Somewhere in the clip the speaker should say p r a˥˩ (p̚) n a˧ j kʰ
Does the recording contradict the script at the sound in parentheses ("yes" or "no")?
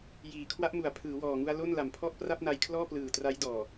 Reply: no